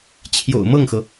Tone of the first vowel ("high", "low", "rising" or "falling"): low